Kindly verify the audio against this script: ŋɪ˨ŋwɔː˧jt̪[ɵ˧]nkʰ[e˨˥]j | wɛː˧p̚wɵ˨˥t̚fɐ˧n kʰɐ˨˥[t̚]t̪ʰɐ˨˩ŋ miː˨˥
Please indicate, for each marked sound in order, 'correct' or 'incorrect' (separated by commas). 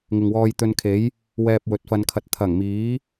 correct, correct, correct